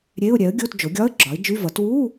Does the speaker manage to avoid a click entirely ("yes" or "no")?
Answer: no